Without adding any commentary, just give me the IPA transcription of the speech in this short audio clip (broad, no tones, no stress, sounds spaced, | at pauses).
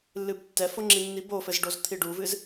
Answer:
lː ɨ b tː ɛ f o ŋ͡ǁ i nː i b o f ɘ z ɖ o z t̪ʰ i ɖ u v ɨ z